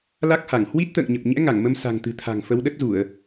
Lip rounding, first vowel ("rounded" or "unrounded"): unrounded